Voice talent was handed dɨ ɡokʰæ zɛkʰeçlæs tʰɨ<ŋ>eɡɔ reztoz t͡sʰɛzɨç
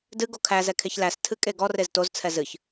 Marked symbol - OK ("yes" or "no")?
no